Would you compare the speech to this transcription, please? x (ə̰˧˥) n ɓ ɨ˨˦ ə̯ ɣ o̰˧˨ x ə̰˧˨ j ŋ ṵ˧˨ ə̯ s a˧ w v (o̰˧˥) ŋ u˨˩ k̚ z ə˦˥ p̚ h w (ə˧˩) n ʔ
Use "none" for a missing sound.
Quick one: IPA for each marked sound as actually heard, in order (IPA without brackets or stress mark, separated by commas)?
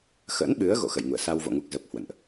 ə̰˧˥, o̰˧˨, ə̰˧˨